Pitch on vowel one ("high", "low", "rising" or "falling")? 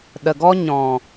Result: low